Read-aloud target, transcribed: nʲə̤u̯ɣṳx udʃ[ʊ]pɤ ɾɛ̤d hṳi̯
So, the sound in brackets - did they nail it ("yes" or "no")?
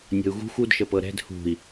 no